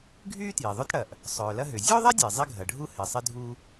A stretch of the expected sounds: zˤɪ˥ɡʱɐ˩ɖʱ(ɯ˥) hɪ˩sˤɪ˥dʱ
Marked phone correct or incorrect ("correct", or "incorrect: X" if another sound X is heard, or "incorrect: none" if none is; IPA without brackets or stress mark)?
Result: incorrect: u˥